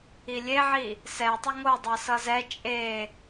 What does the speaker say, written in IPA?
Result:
ilʲeʕi | sɛtˤɪ ŋodˤɤ sʌzɛ t͡ʃʼe

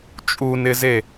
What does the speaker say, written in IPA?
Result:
t͡ʃʼunɪze

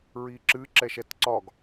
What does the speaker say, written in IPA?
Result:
ɹiǁɨ ǁɛʃɛtǀɒɡ

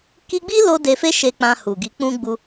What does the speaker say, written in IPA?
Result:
ki˧ɡ͡bi˦lo˧ de˧fe˦ʃe˧ k͡pã˧hu˨ɡi˨˦k͡pũ˦ ɡ͡bu˧

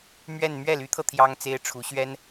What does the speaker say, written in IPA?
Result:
mɥɛ˥˧n mɥɛ˥˩ly˧˥t̪ʰɤ˧ t̪ʰjɑ˥ŋt͡se˥ɪ̯ʈ͡ʂʰu˧˥ ɕɥɛ˥n

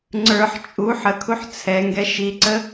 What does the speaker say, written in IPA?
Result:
ŋ͡ǀə˞ħ t͡ʃʼu ħəkʰuħ t͡sʰɛŋɡɛ ʃiǀə

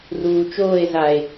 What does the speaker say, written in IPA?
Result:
ruːt͡ʃoːe̯ zae̯

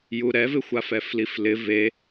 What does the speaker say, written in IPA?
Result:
juɾɛvɪxʷa fɛfliflɪ ve

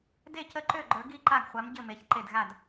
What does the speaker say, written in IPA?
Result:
de˥˨cə˥˨ ǃø˥˨ɡ͡ǃə˞˨˥ ɡi˥˨ǃa˥˨ɡ χʷa˨˥m ɟɘ˥˨me˨˥ç ǃe˥˨dɣa˥˨d

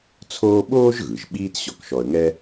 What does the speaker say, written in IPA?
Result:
t͡sʰoː˥ ɓoː˥ʒɣɯ˩ʒ ɓiː˥tɕɔ˧kʃɔ˧ə̯ŋɛ˥

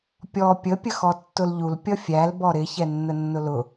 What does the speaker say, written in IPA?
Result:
pʲɔ pʲə pʲəxɔtːʊlʎul pʲʌfʲæl bɔɾɪ çɛnːənːʊlʊ

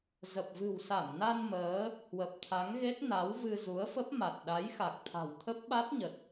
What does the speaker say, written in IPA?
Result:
zə˨˩p̚vɨ̤˨˩w sa˧˩mna˧n məː˨˦ | hwə˨˩p̚t̪ʰa˨˦ŋɣe˦˥t̚ na˨˦wvɨ˧ zu˨˦ə̯fə˦˥p̚ma˨˩t̚ ɗa˨˦jxa˨˩k̚t̪ʰa̤˨˩w t̪ʰə˦˥p̚ɓa˦˥t̚ɲə˨˩t̚

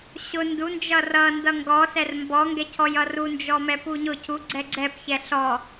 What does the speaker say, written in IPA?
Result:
ɕʊ ndund͡ʒʌ rʌ ndʌŋɡɔsɛr mbɔŋɡɛcʰɔj ʌrund͡ʒɔmɛ puɲʊ cʰu ɡ͡ǀɛɡ͡ǀɛp çɛɬɔ

